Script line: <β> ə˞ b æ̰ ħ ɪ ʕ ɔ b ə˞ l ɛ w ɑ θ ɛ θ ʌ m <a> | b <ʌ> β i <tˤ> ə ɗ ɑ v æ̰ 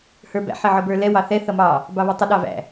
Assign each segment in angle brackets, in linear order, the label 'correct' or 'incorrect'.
incorrect: h, incorrect: ɑ, incorrect: ɑ, correct

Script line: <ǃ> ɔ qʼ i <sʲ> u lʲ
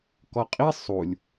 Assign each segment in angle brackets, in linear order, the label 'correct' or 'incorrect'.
incorrect: k, incorrect: sˤ

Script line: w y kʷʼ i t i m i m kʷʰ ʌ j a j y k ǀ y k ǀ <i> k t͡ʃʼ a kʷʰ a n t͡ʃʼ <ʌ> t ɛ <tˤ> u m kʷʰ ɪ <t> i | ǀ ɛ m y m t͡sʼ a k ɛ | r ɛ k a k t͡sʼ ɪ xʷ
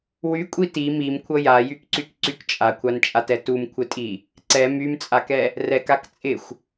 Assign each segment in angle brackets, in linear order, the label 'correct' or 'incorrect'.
incorrect: y, incorrect: a, incorrect: t, incorrect: tʼ

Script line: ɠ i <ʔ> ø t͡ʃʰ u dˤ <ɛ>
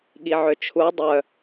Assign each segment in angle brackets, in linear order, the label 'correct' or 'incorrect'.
incorrect: ʕ, incorrect: œ

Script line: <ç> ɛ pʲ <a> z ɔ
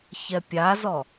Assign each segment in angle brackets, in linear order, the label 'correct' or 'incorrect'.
correct, correct

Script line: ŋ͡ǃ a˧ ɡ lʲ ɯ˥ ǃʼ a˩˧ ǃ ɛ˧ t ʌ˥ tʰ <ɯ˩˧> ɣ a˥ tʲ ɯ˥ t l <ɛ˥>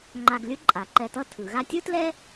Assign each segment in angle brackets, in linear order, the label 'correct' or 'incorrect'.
correct, correct

